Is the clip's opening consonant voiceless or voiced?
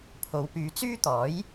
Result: voiceless